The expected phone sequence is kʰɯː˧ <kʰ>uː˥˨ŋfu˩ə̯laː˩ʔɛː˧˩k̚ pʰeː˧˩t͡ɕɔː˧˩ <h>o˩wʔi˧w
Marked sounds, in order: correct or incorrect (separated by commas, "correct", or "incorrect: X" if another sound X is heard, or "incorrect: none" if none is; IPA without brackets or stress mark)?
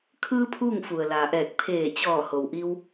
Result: incorrect: pʰ, correct